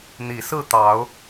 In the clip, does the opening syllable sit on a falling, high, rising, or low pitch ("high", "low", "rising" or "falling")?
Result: low